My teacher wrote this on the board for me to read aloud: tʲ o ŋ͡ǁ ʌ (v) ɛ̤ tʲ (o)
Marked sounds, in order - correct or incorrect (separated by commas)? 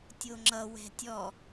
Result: incorrect, incorrect